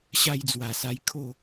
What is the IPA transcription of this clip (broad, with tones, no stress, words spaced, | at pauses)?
ɕa˧jd͡zwa˨˩sa˧jkʰo˥˧